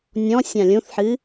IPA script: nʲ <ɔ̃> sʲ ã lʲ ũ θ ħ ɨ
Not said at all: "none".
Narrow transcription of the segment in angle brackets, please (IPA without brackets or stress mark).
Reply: ɔ̃